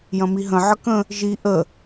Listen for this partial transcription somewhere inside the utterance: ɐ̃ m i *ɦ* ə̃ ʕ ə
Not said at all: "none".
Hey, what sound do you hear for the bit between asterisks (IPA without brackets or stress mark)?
ɦ